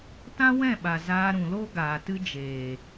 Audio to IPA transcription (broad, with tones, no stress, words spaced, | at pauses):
tã˦wɛ̃˦˨ɓa˨ zaː˧ɾũ˨lo˦ ɡaː˨tɨ˦d͡ʒeː˨